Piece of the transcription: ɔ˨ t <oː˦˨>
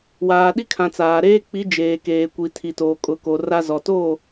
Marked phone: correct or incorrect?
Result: correct